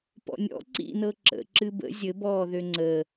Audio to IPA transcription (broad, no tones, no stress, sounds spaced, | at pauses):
p ɔ̰ nʲ ɔ̰ ǀ ḭ n ɤ ǁ ə̰ ǁ ɨ b ə̰ zʲ ɘ b ɔː ð ø ŋ͡ǀ əː